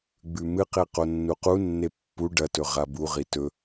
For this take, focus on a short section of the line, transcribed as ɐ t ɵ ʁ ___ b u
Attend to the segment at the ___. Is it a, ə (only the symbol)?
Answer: a